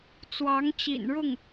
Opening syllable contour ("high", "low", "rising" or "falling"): rising